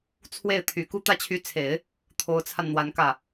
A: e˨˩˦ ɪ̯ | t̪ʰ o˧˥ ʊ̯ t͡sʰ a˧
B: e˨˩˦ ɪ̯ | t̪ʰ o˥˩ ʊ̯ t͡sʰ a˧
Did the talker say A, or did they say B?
A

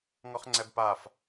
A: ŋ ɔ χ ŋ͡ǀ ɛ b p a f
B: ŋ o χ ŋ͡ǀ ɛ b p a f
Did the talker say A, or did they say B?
A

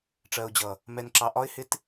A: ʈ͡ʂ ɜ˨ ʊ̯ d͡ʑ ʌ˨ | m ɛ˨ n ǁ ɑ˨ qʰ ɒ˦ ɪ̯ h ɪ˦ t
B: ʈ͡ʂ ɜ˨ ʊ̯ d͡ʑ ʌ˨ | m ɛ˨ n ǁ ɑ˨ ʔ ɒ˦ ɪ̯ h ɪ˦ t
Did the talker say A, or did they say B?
B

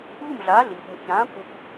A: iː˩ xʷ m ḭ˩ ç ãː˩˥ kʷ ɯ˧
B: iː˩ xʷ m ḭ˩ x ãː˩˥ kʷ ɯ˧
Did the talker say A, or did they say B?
A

